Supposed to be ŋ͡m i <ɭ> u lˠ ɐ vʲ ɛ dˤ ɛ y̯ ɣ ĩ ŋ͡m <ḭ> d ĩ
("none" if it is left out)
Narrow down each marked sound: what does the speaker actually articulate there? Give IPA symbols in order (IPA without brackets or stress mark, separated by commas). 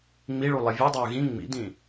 ɭ, ḭ